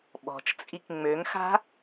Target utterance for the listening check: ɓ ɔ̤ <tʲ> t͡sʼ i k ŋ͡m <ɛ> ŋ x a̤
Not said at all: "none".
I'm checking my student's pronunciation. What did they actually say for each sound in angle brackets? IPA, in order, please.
t͡ʃ, ø

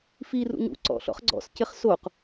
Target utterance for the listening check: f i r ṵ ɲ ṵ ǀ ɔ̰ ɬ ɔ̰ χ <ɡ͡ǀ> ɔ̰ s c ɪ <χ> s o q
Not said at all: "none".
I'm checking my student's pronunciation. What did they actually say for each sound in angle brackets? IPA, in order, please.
ɡ͡ǀ, χ

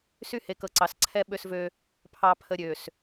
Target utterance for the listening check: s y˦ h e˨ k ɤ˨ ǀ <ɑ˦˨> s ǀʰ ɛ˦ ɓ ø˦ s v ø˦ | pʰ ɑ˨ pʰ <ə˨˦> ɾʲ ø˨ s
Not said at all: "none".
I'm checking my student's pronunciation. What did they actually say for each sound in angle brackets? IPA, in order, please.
ɑ˨, ə˨

